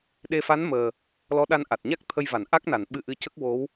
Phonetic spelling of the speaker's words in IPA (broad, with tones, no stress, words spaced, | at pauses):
ɗe˧fa˧˥n məː˨˩ | lɔ˧˥ɗa˧nʔa˨˩t̚ɲa˦˥k̚ t̪ʰə˧jva˨˩˨nʔa˦˥k̚na˨˩˨n ɓɨ˧ʔɨ˧cə˦˥k̚ wo˧˥w